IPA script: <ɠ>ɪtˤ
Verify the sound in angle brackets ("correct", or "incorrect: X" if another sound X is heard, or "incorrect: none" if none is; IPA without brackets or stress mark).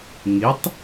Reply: incorrect: ŋ